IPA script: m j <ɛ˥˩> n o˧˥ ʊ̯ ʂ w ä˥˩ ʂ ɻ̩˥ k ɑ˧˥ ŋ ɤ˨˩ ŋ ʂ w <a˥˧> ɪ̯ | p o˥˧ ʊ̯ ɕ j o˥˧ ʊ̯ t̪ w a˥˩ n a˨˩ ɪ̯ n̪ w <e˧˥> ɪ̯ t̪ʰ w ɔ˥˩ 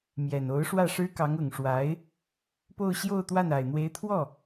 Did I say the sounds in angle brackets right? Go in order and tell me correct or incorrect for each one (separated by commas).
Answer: incorrect, incorrect, correct